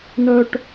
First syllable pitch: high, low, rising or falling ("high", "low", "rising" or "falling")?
high